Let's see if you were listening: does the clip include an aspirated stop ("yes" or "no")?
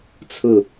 yes